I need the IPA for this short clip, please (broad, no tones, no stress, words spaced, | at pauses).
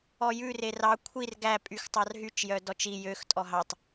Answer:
ɔjʉ rerɑ kʷʰir ɡæ pʼyxtˤɑrɦyt͡ʃ jœdɔt͡ʃi jøx tʼɔɦɑtˤ